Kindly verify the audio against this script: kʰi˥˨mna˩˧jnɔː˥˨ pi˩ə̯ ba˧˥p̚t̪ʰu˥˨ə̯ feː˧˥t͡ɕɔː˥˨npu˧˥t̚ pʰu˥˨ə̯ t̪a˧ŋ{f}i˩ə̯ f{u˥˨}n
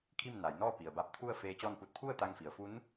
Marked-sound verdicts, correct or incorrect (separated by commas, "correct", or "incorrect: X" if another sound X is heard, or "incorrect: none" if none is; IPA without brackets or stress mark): correct, incorrect: u˧˥